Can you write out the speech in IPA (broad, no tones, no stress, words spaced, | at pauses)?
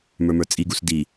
mə˞mə˞t͡sʼiɡus di